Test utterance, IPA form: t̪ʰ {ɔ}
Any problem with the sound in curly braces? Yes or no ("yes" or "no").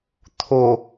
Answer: yes